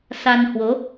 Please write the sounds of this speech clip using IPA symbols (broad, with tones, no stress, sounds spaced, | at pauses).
s a˧ n h w o˨˦